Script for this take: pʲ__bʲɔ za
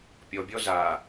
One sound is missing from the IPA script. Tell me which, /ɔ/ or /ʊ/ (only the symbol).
ɔ